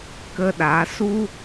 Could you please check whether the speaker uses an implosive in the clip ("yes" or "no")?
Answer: yes